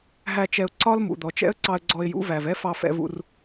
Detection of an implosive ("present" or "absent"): absent